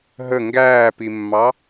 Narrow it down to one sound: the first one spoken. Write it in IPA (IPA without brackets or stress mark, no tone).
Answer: ɦ